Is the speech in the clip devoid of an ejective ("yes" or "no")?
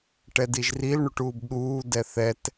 yes